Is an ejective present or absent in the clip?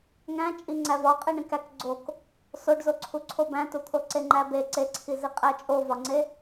present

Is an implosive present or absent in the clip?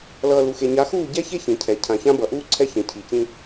absent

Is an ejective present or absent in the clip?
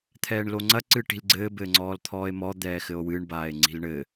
absent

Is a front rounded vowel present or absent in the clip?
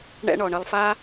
absent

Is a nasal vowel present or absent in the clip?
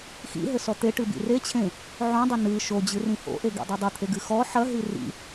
present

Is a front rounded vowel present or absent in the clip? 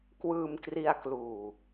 absent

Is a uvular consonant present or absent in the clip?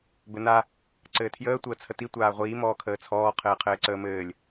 present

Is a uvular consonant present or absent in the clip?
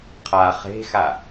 present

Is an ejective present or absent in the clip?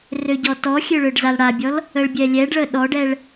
absent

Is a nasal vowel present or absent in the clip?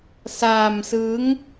absent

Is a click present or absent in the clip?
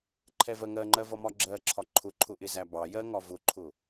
present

